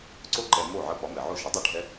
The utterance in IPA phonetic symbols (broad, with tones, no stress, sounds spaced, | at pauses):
ǀ o˥ ǃ ɛ˧ m o˥˩ ʕ ə˧ p ɒ˩˥ m ɛ˩ ʕ o˥˩ ʃ ə˩˥ dˤ ə˥˩ ɖʱ ɛ˥